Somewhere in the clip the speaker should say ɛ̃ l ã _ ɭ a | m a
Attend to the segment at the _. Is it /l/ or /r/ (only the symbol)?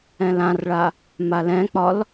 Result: r